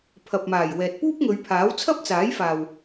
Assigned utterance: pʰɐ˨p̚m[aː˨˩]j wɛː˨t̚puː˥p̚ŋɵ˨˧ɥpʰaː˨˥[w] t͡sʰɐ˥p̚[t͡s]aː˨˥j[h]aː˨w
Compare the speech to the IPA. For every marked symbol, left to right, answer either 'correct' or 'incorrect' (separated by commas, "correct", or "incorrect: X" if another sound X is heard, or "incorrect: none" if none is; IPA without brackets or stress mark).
correct, correct, correct, incorrect: f